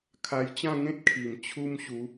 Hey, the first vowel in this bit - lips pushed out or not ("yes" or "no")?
no